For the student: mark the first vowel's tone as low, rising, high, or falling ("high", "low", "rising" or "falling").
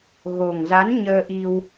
low